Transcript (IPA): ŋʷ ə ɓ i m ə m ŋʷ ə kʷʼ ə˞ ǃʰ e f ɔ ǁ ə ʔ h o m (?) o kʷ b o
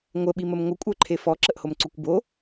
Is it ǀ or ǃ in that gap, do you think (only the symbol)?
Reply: ǀ